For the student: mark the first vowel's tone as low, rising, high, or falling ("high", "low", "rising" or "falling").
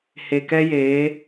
low